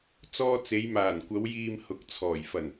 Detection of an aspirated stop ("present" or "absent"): present